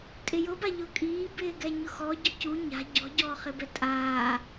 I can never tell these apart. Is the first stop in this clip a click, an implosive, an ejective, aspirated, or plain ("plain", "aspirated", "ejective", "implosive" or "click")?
ejective